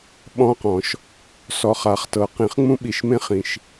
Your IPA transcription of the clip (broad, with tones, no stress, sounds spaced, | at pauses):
ɓ ɔ̃˦ q ɔ̃˨˩˦ ʃ | s ɔ˨ χ a˨˩˦ χ t ɤ˨ q ĩ˨˩˦ χ ŋ͡m ũ˦ ɓ i˨ ʃ m ẽ˦ χ ĩ˨ ʃ